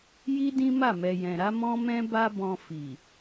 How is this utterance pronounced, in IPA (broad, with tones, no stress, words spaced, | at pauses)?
ji˦dĩ˦ma˦˨ mɛ˨jɛ̃˨ ɾa˨˦mɔ̃˦mɛ̃˦ ba˦bɔ̃˧ fi˨